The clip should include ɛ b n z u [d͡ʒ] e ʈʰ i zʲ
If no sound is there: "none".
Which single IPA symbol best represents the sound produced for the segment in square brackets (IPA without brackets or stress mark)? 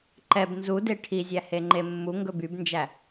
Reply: d